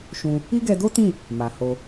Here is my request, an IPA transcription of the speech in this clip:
ʃũ˧ | i˦ɡɛ˧do˦tĩ˦˨ | ma˨ho˧

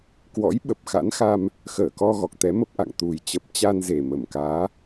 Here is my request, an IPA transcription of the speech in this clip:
kwɔ̰˧˥j ɓə˨˩p̚xa̰˧˥nxa˧m | xəː˧˩kɔ˧ ɣɔ˨˩k̚t̪ɛ˨˦mə˦˥p̚ʔa̰˧˨ŋ t̪u˨˩jt͡ɕə˨˩p̚ t͡ɕa˧nze˨˩ mə˧˩mkaː˨˦

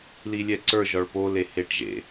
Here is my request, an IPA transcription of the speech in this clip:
lilʲɛǀə˞ ʒɒɭpo leheʈʒḛ

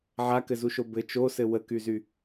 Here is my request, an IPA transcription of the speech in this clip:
ʕakɘzuʃo bɘ t͡ʃosɘ wəkyzy

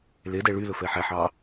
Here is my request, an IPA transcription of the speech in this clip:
ledɛ ɭylɵ fɛħæħɑ

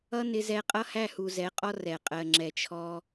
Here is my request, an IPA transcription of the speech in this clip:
ʌ˦nɪ˧zɛ˧ qʼʌ˦hæ˦˨hu˨ zɛ˨˦qʼɔ˦ rɛ˨ qʼɜ˨ŋ͡ǁɛ˨t͡ʃʰɔ˧

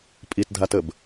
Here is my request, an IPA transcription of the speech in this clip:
pʼitdʱatəb

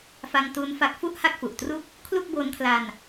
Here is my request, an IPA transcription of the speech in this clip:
fa˧ŋtu˦˥nfa˦˥k̚ fu˥˩ʔha˥˩k̚fu˨˩ʔtru˥˩k̚ | kʰlu˥˩k̚bo˦˥nkʰla˧n

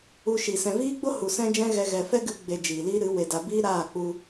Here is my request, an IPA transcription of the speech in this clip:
u˧ʃi˨ sɛ̃˨viː˦ɡ͡bo˦ hu˨sɛ̃˦d͡ʒɛ̃˦ɣɛ˧ ɣɛ˨fɛ˦ɡɨ˧ɡ͡be˨ d͡ʒiː˨li˦ɾɨ˨˦ we˨da˨ biː˦ɾaː˦˨k͡pu˧

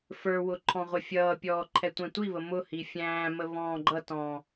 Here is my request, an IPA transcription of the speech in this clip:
fə˞wʊ ǃʰɔ̃ʁʷɪfʲʌːpʲɔː ǃʰɛtʷɛ̃tʷiβə mʊ hifʲæ̃ːmə βɔ̃ːɡ͡ǃʌtɔ̃

